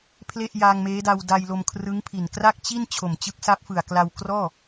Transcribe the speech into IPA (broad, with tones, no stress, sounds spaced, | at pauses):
pʰ l e˥˩ ʔ j aː˧ ŋ m eː˦˥ d a˧ w d a˧ j l o˧ m kʰ r ɯ˦˥ ŋ pʰ i˨˩ n k r a˥˩ k̚ t͡ɕ i˥˩ n t͡ɕʰ o˨˩ m t͡ɕ ɯ˦˥ k̚ s a˦˥ p̚ f ɯ˨˩ a̯ k l a˧ w k r ɔː˥˩